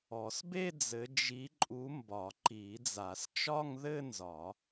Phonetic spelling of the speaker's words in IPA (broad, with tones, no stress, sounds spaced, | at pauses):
ɔ˨˩˦ s b e˥˧ d͡z ɘ˨˦ d͡ʒ i˨˦ ǃʼ u˨˦ m b ɒ˨˩˦ ǃ i˨˩˦ d͡z a˨˩˦ s t͡ʃ ɒ˥˧ ŋ ð ɘ˥˧ n z ɒ˨˩˦